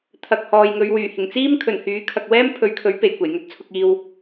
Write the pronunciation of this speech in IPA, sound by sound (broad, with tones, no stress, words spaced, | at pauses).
t̪ʰɐ˨k̚ hɔː˨jŋɵ˨˧ɥwyː˨˩ hɪ˨˩ŋt͡siː˥mkʰɵ˨˩n hyː˨˥kʰɐ˨k̚ wɛː˥m pʰɵ˨˧ɥkʰɵ˨˥ɥ pe˨˩j kʷe˨˩jŋɵ˥t̚t͡sʰʊ˧k̚ iː˨w